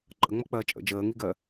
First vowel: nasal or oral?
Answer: oral